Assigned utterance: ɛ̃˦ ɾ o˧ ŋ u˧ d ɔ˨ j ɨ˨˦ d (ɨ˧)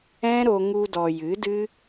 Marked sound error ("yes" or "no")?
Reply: yes